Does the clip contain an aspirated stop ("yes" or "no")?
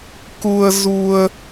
no